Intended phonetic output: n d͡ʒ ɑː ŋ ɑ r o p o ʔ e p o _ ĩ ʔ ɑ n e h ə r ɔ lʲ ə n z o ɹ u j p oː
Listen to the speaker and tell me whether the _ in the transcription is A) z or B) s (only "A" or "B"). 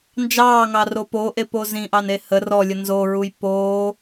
A